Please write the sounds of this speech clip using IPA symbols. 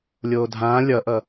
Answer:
lʲ oː dʱ ãː lʲ ʌ ʔ ʌ

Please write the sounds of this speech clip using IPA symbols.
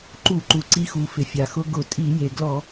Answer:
ǃ u˧˩˧ ǃ u˩ ǀ i˧ x u˩ f ɪ˩ fʲ a˩ x ʊ˧ ɡ ʊ˧˩˧ tʼ i˧˩˧ j e˩ ɡ l ɔ˧˩˧

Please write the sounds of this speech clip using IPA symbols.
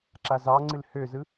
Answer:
ǁ a z ɑ ŋ͡ǀ ɨ l h ø z ɯ

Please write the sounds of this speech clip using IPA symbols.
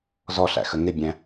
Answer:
z ɔ ɬ æ̰ x ə ŋ ɪ bʲ æ̃

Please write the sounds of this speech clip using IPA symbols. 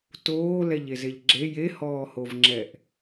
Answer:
t oː l ɛ ʎ e z e ʎ ɡ͡ǁ e j e h ɔː h o v ŋ͡ǁ ɛ ʔ

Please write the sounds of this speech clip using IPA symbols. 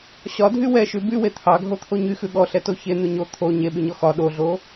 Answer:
ɕ ɒ dʱ y w ɛ ʃ ʉ b y w e t̪ʰ ɑ ɡʱ o t̪ʰ o ɲ y x ʉ ɠ ɔ ɬ ɛ t o ç e n̪ ʉ ɲ o t̪ʰ o ɲ e ɓ y ɲ ɔ x ɒ ɗ o ɮ o

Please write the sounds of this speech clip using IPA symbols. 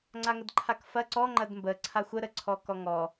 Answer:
ŋ͡ǀ a ŋ ə d ǃʰ a k f ɐ ǀ ɔ ŋ͡ǃ ɐ d m b ə ǀʰ a xʷ ə ɾ ə ǀʰ ɔ k ɔ ŋ ɔ

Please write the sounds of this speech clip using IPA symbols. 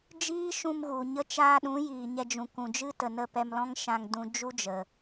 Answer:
d͡ʒ iː˦ ʃ ũ˧ m ɣ u˨ ɲ ə˧ t͡ʃ aː˧ ɗ ũ˨˦ j iː˨ ɲ ɛ˧ d͡ʒ ũ˨ k ũ˨ d͡ʒ ɨ˦ t ə˨ n ə˦˨ p ɛ˧ m l ɔ̃˦ ŋ ʃ ã˧ ŋ d ũ˧ d͡ʒ u˦ d͡ʒ ə˨

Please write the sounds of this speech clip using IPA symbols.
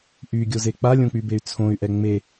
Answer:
ʔ y ɡʲ o z e k͡p a lʲ õ k͡p y b e y̯ t͡sʰ õ y̯ ʔ ɛ ŋ͡m e

